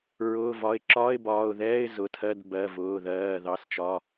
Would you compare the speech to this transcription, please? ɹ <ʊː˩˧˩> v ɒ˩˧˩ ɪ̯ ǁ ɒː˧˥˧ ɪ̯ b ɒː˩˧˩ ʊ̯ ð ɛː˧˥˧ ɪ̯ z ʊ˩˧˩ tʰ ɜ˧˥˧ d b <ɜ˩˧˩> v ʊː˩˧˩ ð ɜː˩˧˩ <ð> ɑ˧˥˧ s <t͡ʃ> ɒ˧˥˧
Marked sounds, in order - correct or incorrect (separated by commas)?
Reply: correct, correct, correct, correct